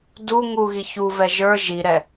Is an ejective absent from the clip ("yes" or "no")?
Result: yes